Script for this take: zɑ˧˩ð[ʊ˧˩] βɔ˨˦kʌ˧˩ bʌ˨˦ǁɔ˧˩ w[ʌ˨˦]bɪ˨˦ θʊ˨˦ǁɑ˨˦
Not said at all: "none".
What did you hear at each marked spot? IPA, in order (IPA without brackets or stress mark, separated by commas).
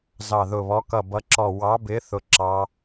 ʊ˧˩, ɑ˨˦